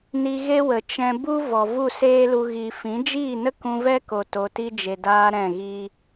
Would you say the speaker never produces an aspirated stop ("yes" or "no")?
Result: yes